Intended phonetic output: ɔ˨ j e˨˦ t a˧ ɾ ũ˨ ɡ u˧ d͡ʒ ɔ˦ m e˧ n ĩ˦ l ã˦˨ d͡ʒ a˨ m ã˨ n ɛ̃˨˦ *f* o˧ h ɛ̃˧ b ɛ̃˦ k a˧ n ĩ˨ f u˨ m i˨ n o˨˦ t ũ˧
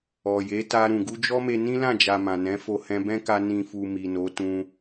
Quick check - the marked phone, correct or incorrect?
correct